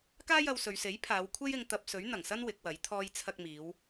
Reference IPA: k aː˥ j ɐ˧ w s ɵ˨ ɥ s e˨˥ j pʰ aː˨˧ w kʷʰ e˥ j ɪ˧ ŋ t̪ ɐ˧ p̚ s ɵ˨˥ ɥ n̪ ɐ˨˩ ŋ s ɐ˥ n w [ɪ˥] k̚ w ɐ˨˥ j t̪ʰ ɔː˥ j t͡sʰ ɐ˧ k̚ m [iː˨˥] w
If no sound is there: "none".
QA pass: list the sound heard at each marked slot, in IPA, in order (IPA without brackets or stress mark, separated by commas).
ɪ˨˥, iː˨˧